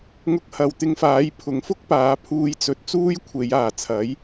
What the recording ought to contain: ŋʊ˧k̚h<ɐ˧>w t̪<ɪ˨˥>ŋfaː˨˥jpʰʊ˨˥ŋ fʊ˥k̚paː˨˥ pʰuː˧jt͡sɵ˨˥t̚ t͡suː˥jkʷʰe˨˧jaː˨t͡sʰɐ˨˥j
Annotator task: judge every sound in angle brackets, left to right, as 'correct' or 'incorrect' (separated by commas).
incorrect, incorrect